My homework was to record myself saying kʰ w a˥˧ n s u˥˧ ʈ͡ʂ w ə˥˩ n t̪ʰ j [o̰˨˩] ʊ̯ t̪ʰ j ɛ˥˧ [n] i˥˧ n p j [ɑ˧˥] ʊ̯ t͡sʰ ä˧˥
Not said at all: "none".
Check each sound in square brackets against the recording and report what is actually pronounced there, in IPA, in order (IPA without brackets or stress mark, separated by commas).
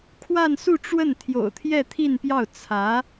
o̰˨˩, t̪ʰ, ɑ˥˩